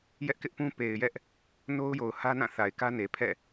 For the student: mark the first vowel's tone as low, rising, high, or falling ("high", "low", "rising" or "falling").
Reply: high